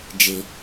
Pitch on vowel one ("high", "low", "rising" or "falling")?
low